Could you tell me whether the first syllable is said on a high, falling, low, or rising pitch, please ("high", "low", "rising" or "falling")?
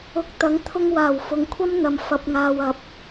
rising